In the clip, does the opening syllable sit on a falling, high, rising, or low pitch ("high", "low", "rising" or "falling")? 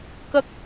high